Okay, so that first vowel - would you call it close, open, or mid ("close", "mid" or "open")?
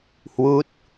close